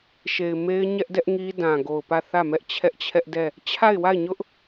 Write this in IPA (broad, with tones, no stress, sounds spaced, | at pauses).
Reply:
ʃ e˨ ɪ̯ m e˦ ɪ̯ ɲ ɛ˦ ʔ d ɛ˦ ʔ ŋ i˦ d ã˨ ɡ o˨ ʊ̯ p ä˦˨ θ ä˦˨ m ɛ˦ ʔ t͡ɕʰ ɛ˦ ʔ t͡ɕʰ ɛ˦ ʔ d ɛ˦˨ | t͡ɕʰ a˦˨ ɪ̯ w a˦˨ ɪ̯ ɲ ʊ˦ ʔ